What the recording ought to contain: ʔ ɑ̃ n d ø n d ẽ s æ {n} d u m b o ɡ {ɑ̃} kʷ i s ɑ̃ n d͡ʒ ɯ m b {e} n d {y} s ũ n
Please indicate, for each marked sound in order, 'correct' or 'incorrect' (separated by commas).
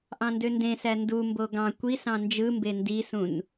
correct, correct, correct, incorrect